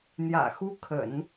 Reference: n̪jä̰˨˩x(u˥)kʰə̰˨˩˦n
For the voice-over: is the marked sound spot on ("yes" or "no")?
yes